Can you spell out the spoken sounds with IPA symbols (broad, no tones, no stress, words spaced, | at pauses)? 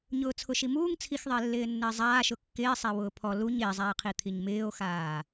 ɲʊːt͡sʰʊʃimuːŋ t͡sʰixðˤɪː lːɪːnːɪːzˤaː ʃʊkːɪːsˤewʊː pʰɔ luɲ ɪːzˤɛːqʰi t̪ʰiɲmɪːo̯xaː